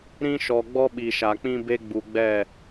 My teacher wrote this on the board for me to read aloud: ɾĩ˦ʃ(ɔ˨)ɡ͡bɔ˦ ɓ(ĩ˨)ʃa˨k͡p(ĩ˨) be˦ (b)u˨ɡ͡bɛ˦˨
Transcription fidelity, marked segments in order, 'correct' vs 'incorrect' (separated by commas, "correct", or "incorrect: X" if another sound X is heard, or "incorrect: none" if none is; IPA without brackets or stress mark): correct, incorrect: i˨, incorrect: ĩ˦, incorrect: ɡ͡b